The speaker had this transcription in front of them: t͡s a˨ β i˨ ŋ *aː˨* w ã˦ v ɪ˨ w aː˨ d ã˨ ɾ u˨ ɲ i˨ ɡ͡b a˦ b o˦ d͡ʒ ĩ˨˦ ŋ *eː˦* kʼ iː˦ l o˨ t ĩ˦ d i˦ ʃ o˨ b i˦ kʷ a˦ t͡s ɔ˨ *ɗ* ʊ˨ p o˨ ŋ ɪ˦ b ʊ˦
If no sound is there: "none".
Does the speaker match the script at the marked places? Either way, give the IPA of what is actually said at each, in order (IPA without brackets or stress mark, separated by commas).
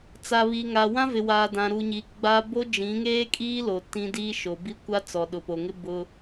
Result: aː˨, eː˦, ɗ